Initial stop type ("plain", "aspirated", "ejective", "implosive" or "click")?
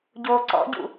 plain